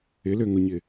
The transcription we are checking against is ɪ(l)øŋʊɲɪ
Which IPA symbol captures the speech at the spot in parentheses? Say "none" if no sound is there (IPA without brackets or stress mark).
l